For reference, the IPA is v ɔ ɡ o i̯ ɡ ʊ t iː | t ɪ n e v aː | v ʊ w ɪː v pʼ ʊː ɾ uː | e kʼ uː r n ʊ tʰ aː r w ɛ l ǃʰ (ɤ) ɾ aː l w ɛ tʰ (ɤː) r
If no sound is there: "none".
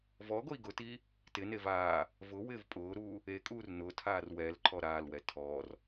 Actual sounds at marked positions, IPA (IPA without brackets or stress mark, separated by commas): ɔ, ɔː